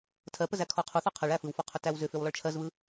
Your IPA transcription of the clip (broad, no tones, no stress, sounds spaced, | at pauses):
tʰ ɜ p ə z æ kʰ ɔ qʰ u θ ɔ qʰ ə ɭ æ f ɯ w f ɔ qʰ ʏ t æ w z ʏ f ʏ w lˠ ə ɭ t͡ʃʰ ɜ z β ɯ